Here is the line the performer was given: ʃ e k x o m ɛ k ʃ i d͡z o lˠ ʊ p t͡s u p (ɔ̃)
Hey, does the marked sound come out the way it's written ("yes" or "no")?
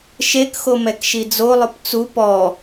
no